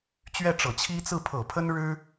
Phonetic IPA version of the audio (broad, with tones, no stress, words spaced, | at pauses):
t͡ɕɥɛ˥˩ʈ͡ʂɤ˨˩t͡ɕʰi˥ t͡sɹ̩˥˩ pʰɤ˨˩pʰə˥nɻɻ̩˥